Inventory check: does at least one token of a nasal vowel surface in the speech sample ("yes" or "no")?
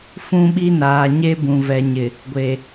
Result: yes